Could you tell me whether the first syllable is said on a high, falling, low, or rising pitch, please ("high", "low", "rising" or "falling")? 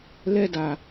falling